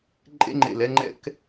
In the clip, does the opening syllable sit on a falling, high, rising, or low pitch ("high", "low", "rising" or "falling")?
high